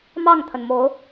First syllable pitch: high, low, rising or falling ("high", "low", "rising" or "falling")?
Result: falling